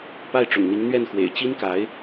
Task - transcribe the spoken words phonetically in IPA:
p a˥˩ ɪ̯ ʈ͡ʂ ʊ̰˨˩ ŋ n̪ i˧˥ ŋ n̪ ɥ ɛ˥˩ n x w ḛ˨˩ ɪ̯ t͡ɕ i˥ n k a˧˥ ɪ̯

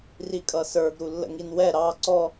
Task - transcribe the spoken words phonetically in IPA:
r i kʼ ʌ s ə˞ ɡ ɾ u lː ə̰ ŋ i n w ɛ ɾ ɑ ǀ ɔ

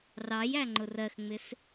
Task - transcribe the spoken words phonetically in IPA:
r ɑ j æ ŋ͡ǃ ʊ r ɜ x ŋ͡m ɪ s

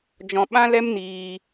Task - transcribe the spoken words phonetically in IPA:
d͡ʒ ɔ̃˧ ɓ ã˦ l ɛ˦ m n iː˧

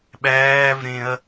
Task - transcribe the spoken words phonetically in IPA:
ɓ æː v ɾ ẽ ɐ̯

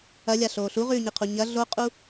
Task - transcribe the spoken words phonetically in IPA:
ɐ lʲ a ɬ oː ɬ u ʁ ʉː ɲ e qʰ u ɲ ɐ ɮ o qʼ u

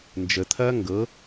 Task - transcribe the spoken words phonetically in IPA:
n d͡ʒ ə t̪ʰ ɐː ŋ ɡ ɤ

